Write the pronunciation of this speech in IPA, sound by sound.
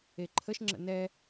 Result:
e ǃʰ ə ʃ ŋ͡ǁ ə̰ n ɛ

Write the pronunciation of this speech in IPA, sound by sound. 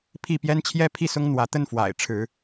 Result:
pʰ i˥˨ p j ɛ˦ n t͡ɕʰ j ɛ˦ pʰ i˥˨ s ʊ˦ ŋ n̪ w ä˨˦ t̪ ə˦ n f w a̰˨˩ ɪ̯ ʈ͡ʂʰ ɻ̩˨˦

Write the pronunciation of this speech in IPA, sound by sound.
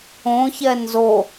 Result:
õ ç ɛ n z o

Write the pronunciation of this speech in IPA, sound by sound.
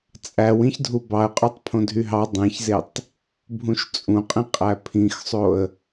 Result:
t͡sʼ æ w ĩ ç dʱ u b ɑ ə̯ qʼ o tˤ pʰ õ dʱ y ɦ ɑ dˤ ẽ ç z e tˤ | bʱ ũ ʃ t͡sʼ ũ qʼ ĩ qʼ æ pʰ ĩ x sˤ o ə̯

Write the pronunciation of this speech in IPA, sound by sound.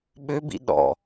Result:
ɓ ø b ḭ ɗ ɔ̰

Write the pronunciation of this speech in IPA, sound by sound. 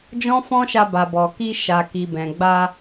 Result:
d͡ʒ ɔ̃˦ f ɔ̃˦ ʃ a˧ b a˨ b ɔ˨ k i˧ ʃ a˨ k i˨ b ɛ̃˨ ɡ͡b a˧

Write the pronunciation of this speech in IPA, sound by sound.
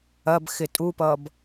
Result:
ɐ b x ɪ tʼ u p ʌː b

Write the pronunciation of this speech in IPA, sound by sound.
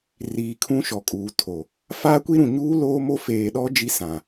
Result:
r iː˨ kʰ ũ˦ ʃ ɔ˨ kʼ uː˨ tʰ o˨ | f aː˦ kʷ i˦ ɾ ũ˨ ɲ uː˦ l oː˦ m o˦ f eː˨ ɗ ɔ˦ d͡ʒ i˦ s ã˨

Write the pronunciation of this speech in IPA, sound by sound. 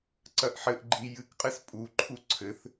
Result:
ǀ ɐ ʔ ħ ɘ ʔ ɡ͡ǃ i j ɨ k qʼ ɘ s pʼ u ǃʰ u ǀʰ ɘ θ

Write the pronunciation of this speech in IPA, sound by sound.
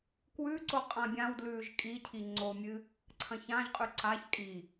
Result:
k w ʉ ǀ o qʼ ã bʲ ã w d l ʉː ʒ kʼ i cʰ i ŋ͡ǀ o mʲ ɨ | ǀʰ ɐ̃ ç ã ʒ qʼ ʉ ǀ a ç kʼ i

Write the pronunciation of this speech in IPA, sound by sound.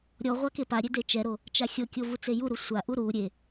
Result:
ɾʲ ɔ ʁʷ a k e p a ɾʲ e d e t͡ʃ ɛ ɾ o | t͡ʃ a xʲ ɤ kʲ o v u t͡s e j u ɾ u sʷ a ʔ u ɾ u ɾʲ e

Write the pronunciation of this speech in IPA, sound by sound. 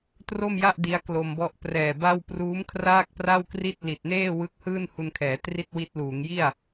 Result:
t r o˥˩ m j a˥˩ ʔ d i˦˥ a̯ k l o˧ m b ɔ˥˩ ʔ p r ɛː˨˩ b a˥˩ w p r uː˦˥ m kʰ r aː˥˩ k̚ p r a˥˩ w k r i˥˩ t̚ l i˨˩ t̚ n eː˥˩ w ɯ˦˥ k̚ h ɯː˥˩ n h u˧ n kʰ ɛː˩˦ t r i˥˩ t̚ w i˦˥ t̚ l uː˩˦ ŋ j i˥˩ a̯

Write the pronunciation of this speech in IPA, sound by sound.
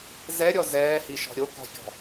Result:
z ɛ ɾʲ ɔ z ɛː h i ʃ ɔ̤ ɾʲ o k ɔ̤ fʲ ɔ̤

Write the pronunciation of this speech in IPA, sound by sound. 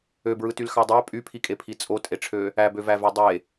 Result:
ø b ɹ ɯ t y l x ɑ dˤ æ pʼ y pʰ i kʼ e pʰ i t͡sʼ o tʼ e ʈ͡ʂʰ ø | æ b ø v æ v e dˤ e

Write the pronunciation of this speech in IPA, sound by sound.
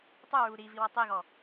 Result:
tˤ u ɹ u ɾ i v i w ɔ tˤ i ɣ ɔ

